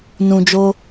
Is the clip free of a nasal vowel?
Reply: no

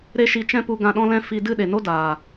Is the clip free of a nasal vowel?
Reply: no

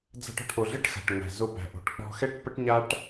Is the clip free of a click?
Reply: yes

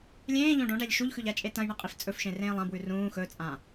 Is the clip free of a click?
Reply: yes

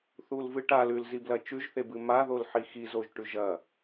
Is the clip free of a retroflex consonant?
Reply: no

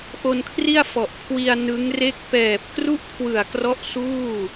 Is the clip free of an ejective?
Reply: yes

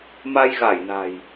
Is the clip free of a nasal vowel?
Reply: yes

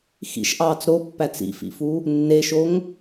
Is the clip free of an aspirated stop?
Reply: yes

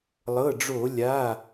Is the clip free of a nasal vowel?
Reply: yes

